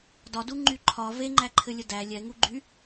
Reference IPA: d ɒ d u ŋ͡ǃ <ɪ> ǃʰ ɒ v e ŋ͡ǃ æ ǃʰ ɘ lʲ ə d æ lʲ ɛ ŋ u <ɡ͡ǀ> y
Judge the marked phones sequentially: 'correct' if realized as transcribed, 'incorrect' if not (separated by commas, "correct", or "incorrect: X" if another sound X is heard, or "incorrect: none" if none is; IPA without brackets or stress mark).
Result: incorrect: y, incorrect: ɡ͡ǃ